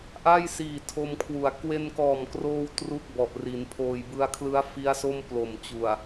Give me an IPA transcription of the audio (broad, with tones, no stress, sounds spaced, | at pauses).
ʔ a˥˩ j s iː˨˩ tʰ o˧ m kʰ w u˩˦ a̯ k w e˧ n k ɔː˨˩ m k r oː˧ w t r u˥˩ k̚ b ɔ˨˩ ʔ r i˩˦ n pʰ oː˨˩ j b ɯ˧ a̯ kʰ l ɯ˦˥ a̯ f i˦˥ a̯ s o˥˩ m p l o˨˩ m t͡ɕ u˨˩ a̯